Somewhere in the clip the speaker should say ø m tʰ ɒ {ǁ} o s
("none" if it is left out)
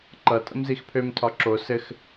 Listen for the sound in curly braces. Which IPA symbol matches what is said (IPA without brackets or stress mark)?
ǁ